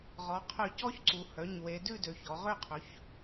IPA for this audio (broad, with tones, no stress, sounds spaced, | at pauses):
ʁ ɔ˩˧ qʰ œ˧˩˧ c ɔ˦˥ ç ǀ u˩˧ h œ˩˧˩ ɲ w e˩˧ d ʉ˥˩ d ø˩˧ ç ɔ˩˥ ʁ ø˥˩ qʰ ɵ˩˥ ç